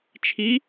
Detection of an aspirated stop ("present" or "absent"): present